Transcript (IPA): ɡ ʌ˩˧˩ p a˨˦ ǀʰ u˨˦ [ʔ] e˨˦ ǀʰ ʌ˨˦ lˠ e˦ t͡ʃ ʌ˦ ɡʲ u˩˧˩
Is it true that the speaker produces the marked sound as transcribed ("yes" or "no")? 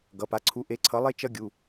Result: yes